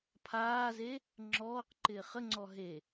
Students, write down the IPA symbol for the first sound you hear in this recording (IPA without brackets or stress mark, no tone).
pʰ